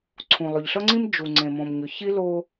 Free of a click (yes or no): no